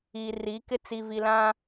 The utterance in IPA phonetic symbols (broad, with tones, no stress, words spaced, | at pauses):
iː˨ri˨˦kɪ˦ t͡si˨vi˨lã˦